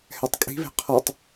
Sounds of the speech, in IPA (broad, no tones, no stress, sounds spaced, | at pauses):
h ɛ tˤ kʼ i̤ β e̤ qʰ ɔ tˤ